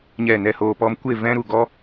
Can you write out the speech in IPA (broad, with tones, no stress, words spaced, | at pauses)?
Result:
ɲɛ˦˨nɛ˦hoː˧pɔ˦m kʷe˦˨ vɛ̃˧ɾu˨ ɡɔ˦